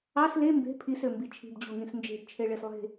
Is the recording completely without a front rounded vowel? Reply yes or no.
no